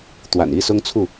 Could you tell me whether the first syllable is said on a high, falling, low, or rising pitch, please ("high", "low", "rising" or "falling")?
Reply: low